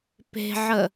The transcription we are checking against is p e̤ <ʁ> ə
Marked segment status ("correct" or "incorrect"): incorrect